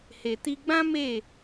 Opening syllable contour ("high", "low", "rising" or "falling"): low